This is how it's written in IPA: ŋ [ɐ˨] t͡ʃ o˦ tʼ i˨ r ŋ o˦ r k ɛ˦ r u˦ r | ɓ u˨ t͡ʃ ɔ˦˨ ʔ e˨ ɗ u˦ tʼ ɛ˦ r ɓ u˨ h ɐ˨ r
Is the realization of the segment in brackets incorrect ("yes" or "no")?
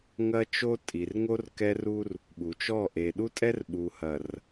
yes